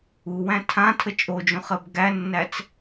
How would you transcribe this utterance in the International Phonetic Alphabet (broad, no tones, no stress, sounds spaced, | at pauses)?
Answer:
u w æ̃ tʰ ã tʰ ə t͡ʃʼ o d͡ʒ õ χ ɜ b ɡ æ nː æ t͡s